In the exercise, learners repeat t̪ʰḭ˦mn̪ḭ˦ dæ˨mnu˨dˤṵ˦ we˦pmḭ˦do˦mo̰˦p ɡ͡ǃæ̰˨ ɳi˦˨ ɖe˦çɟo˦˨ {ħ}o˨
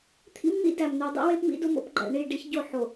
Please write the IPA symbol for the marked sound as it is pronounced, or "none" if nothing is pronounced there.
ħ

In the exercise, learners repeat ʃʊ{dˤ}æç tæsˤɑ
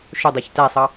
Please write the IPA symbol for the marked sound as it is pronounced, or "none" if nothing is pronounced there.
dˤ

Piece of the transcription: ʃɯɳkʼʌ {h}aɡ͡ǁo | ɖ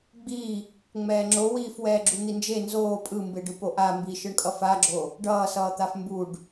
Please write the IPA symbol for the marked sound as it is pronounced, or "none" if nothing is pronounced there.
f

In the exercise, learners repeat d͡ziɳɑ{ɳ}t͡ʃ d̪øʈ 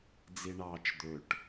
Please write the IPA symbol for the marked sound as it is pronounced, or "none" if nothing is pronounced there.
none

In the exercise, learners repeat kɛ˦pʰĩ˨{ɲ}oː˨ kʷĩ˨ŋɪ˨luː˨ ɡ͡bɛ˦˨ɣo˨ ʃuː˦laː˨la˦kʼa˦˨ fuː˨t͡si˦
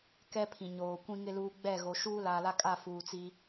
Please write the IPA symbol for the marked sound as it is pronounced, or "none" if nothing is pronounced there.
ɲ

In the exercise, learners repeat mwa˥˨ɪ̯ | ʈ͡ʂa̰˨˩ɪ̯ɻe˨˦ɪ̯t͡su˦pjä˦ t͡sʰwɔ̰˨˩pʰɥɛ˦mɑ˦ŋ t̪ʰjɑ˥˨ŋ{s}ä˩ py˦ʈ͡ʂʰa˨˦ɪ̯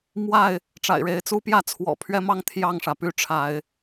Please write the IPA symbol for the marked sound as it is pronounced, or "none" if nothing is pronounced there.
ʂ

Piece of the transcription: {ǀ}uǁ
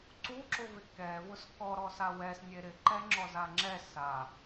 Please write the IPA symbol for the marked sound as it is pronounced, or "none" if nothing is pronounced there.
ǀ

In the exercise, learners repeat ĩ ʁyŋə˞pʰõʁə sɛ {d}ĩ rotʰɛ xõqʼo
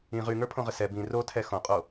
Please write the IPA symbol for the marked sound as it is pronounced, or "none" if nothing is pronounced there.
b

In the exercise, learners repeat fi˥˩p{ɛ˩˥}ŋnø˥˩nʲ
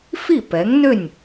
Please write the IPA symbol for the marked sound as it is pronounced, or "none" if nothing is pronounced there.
ɛ˩˥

